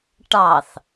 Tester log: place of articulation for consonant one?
retroflex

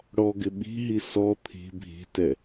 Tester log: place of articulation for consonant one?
retroflex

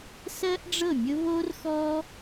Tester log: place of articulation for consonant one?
alveolar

